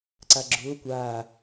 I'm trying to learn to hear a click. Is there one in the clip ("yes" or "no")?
yes